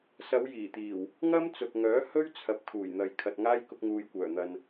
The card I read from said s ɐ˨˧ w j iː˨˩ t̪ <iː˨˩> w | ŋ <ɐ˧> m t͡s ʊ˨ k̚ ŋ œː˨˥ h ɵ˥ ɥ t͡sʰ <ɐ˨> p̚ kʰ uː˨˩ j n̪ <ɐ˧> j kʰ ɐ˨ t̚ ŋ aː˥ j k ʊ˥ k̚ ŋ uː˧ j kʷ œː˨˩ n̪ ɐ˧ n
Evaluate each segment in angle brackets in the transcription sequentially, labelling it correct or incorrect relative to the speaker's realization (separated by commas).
correct, incorrect, correct, incorrect